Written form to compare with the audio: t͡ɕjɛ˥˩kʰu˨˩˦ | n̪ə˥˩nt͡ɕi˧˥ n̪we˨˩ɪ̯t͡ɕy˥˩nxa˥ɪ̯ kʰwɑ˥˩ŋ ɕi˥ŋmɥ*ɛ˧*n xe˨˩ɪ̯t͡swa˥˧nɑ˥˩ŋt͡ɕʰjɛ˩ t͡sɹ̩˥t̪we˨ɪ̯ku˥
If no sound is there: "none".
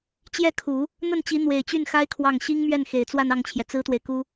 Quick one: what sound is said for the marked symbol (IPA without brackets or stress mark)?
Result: ɛ˥˩